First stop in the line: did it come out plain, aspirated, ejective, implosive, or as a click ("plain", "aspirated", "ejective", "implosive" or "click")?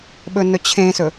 implosive